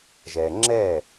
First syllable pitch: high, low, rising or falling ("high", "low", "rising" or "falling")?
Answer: low